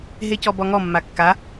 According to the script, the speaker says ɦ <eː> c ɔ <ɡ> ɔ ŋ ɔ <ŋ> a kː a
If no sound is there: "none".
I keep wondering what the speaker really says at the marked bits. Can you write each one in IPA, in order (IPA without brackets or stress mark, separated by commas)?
e, b, mː